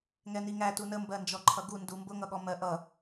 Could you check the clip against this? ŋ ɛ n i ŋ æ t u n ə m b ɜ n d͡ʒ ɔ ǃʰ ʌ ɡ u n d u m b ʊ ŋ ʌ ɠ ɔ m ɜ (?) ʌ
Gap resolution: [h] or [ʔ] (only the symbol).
ʔ